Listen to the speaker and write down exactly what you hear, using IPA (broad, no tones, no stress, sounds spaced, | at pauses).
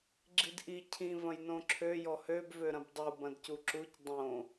ɡ͡ǁ i d ʔ i cʰ ĩ v ɐ̃ j n õ ǁʰ ø j ɔ h ø b v ø ɾ ɐ̃ b dˤ u b ɐ̃ d c u ǁ u c dˤ õ